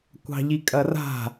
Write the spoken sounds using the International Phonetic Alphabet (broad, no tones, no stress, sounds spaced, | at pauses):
kʷ ɑ̤ ʎ i kʼ ɐ r a̤